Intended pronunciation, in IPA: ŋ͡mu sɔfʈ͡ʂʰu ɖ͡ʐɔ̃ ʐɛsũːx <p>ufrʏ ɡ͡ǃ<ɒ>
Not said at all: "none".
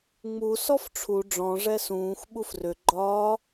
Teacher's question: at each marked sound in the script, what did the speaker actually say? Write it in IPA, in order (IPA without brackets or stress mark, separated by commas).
ɓ, ɒː